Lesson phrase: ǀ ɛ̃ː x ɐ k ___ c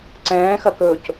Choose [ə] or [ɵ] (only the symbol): ɵ